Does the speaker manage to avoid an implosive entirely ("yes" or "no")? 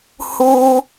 yes